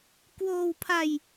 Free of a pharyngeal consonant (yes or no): yes